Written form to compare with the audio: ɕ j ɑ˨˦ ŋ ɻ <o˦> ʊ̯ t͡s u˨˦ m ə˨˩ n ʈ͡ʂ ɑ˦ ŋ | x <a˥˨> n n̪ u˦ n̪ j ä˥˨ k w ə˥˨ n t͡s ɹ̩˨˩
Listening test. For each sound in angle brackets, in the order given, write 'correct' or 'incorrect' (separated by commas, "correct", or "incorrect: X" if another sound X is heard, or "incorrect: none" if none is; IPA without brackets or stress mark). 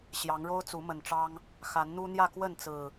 correct, incorrect: a˨˦